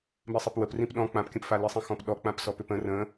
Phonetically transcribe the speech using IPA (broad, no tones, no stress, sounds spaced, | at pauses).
m i sˤ i p w ə p r ĩ p ɗ ɔ̃ k͡p ã p kʲ ə̃ p f a l i sˤ ĩ x ɔ̃ p ɗ ɔ k͡p ã p s ɔ p ʏ p ə̃ r ə̃